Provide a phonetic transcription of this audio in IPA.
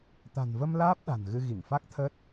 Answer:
t̪ a̤˨˩ n v ə˧ m l aː˦˥ p̚ ɗ a̤˨˩ n ɣ ɨ˧ ɣ i˧˩ ŋ f a˦˥ k̚ t̪ʰ əː˦˥ t̚

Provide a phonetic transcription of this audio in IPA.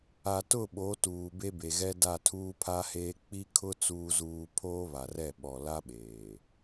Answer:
a˨ t ʊ˦˨ ɓ o˨˦ t uː˨ b e˦ b e˨ ɣ ɛ˦ d a˦˨ tʰ uː˦ pʰ a˦ h eː˦ k͡p i˦ kʰ ʊ˦ t͡s uː˦ z uː˦ pʰ oː˦ β a˨ r ɛ˦˨ ɓ ɔ˨ l a˦ ɓ eː˨

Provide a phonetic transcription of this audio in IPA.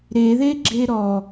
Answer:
ɾ e ð e ɡ͡ǁ e ɾ ɔ

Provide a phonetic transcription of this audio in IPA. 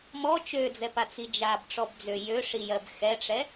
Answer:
m ɔ t͡ʃ ø d͡z ɛ p a t͡s i d͡ʒ a b ʈ͡ʂ ɔ b d͡z ø j ø ʂ i j ɜ b x ɛ ʈ͡ʂ ɛ

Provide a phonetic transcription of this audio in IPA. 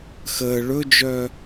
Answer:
x əː ɭ ɵ d͡ʒ œː

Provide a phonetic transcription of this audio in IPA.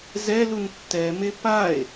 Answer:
z ɛ l u n tː ɛ m e p a e̯

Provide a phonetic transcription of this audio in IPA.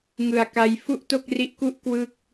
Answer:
ŋ ɯ˨˩ a̯ k a˧ j f u˥˩ ʔ t o˥˩ k̚ r i˦˥ ʔ k u˥˩ ʔ k w ɯ˥˩ k̚

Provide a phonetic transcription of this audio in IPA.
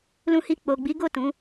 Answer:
l ũ˧ h i˧ k͡p o˨ ɡ͡b i˨˦ ɡ o˦˨ t ũ˨˦

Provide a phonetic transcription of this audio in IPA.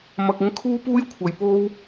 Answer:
m ɐ˧ k̚ ɪ˥ ŋ kʰ uː˥ p uː˥ j kʷʰ ɐ˨ j p o˥ w

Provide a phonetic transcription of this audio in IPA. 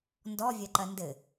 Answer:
n d ɔ vʲ ɐ ǃ ɐ n d ɘ

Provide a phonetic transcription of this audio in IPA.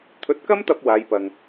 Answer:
t̪ʰ ɵ˨˥ t̚ k ɐ˥ m t̪ ɐ˧ p̚ w aː˨˧ j p ɐ˨ ŋ

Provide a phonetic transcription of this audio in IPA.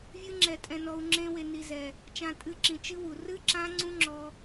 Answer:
vʲ ɨ˦˥ ŋ͡ǁ ɛ˧ tʼ ɛ̃˧ n ɔ˧ u̯ ŋ͡ǁ ẽ˦˥ w e˧ n i˧ z ɛ˨˩ | t͡ʃ ã˧ tʼ ɨ˧ ǁ ĩ˨˩ t͡ʃ ɨ˦˥ w u˨˩ r ɨ˦˥ ǁ ã˦˥ ŋ͡ǀ ũ˦˥ ŋ͡ǁ ɔ˧

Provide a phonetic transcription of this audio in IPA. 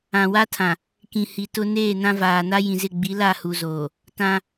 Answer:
ã˨ w a˦ tʰ ã˨ | k ĩ˨ h i˨ t ʊ˦ n eː˦˨ n ã˦ v aː˨ n a˦ j ĩ˨ z ɪ˦˨ ɡ͡b i˨˦ l a˦˨ h u˨ z oː˨ | t ã˦

